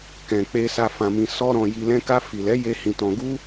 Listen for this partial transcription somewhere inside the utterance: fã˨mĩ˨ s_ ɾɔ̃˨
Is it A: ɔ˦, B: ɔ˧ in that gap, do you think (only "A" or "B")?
B